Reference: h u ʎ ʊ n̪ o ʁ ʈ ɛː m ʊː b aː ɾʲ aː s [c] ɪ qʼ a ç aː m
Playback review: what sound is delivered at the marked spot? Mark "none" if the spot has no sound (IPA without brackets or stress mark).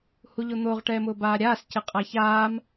c